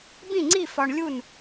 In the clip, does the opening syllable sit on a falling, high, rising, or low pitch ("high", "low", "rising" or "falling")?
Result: falling